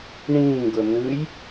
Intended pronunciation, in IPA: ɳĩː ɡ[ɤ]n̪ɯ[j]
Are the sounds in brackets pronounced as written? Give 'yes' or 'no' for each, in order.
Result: yes, yes

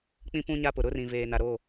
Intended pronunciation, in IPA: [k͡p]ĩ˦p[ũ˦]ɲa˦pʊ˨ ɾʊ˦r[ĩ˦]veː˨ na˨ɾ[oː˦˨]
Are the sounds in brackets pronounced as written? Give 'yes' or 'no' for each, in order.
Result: yes, yes, no, yes

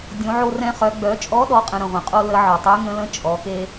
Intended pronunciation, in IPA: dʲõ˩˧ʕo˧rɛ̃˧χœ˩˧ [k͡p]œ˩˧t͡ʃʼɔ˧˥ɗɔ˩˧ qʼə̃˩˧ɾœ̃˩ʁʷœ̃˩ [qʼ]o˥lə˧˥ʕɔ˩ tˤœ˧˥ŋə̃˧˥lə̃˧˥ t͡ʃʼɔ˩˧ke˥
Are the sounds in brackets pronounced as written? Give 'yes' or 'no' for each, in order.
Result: no, yes

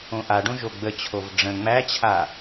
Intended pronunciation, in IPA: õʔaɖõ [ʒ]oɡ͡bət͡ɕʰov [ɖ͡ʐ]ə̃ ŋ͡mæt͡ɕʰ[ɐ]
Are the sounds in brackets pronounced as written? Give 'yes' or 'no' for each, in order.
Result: yes, yes, no

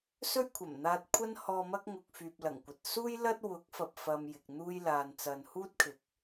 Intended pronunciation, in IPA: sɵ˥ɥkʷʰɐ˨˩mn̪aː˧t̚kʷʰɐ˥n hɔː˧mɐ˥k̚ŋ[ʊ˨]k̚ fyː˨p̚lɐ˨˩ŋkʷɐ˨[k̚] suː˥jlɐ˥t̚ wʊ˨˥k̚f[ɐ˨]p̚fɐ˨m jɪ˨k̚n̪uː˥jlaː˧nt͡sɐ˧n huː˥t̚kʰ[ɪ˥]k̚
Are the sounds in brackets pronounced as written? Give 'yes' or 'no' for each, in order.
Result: yes, no, yes, no

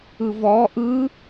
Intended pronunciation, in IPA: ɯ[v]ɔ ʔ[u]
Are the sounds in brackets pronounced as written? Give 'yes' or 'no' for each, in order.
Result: yes, no

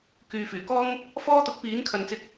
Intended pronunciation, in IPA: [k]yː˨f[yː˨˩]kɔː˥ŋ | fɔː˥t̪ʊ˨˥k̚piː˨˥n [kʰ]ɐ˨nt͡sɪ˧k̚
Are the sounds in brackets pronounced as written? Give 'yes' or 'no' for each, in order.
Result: yes, yes, yes

